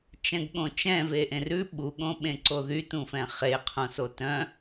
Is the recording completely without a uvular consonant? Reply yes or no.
no